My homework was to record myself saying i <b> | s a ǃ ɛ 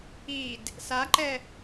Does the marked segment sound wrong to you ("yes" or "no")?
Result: yes